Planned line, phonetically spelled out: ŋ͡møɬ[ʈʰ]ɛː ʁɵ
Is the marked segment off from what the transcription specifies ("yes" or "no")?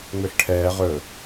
no